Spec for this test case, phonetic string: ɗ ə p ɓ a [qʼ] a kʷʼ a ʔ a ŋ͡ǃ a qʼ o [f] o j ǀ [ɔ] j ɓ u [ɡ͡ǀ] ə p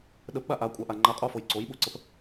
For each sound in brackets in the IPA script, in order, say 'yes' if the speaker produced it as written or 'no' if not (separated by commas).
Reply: no, yes, no, no